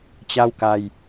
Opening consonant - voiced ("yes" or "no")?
no